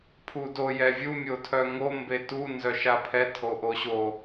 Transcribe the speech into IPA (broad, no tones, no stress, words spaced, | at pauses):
pʰudo jɛvʲu mʲotʰœŋo mbetu nzœʃapʰɛ tʰoʔoɕo